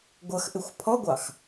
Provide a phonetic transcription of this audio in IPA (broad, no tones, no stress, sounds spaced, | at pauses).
ɡʷ ʌ x ʔ ɪ xʷ pʰ ɔ ɡʷ ɑ x